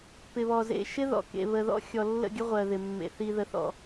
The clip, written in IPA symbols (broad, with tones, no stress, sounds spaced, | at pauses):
p ɪ˨ β ɔ˨ z ḛ˨ ʃ ɪ˦ ð ɔ̰˨ k ḛ˨ β ə˨ ð ɔ̰˦ xʲ ɔ˨ lː ə̰˦˨ ɡʲ ə˦ ʁʷ ɜ˨ ð ɪ˨ mː ḛ˨ θ i˨ ð ə˨ θ ɔ̰˨